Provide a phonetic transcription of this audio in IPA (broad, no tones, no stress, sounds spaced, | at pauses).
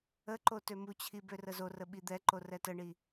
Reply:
ə ǃ o t ø m u t͡ɕʰ i b ø r ə z o r ə ɓ i d̪ ɛ ǃ o r ɛ t ə ɳ i